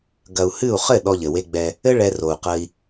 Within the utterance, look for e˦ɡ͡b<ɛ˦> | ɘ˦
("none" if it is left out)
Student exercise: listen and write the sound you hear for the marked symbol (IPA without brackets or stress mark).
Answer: ɛ˦